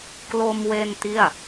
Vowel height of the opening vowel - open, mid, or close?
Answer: mid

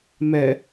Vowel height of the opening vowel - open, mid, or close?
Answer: mid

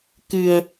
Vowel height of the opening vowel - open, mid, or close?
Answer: close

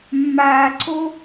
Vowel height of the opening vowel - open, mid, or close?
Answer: open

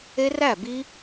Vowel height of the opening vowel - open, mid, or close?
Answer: mid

